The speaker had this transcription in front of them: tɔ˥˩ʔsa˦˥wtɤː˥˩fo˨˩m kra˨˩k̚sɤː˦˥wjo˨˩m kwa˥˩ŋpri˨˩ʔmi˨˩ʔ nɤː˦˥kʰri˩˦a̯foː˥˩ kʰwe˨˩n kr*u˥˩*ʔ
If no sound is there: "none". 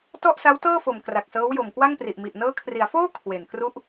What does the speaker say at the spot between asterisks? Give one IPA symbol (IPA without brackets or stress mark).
u˦˥